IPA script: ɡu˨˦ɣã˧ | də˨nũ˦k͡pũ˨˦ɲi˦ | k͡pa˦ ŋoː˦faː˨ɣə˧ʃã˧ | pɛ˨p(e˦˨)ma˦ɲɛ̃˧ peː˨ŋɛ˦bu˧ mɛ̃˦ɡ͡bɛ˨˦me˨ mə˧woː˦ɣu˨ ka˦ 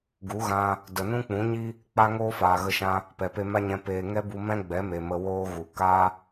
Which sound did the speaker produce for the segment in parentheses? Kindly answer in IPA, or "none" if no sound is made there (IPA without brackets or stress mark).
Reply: e˧